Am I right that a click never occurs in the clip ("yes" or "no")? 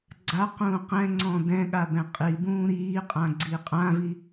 no